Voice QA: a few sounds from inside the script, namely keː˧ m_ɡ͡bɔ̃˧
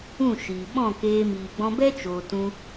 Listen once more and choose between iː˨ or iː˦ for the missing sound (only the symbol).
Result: iː˨